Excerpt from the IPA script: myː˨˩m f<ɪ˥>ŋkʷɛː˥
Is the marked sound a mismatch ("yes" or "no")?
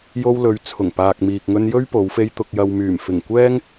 yes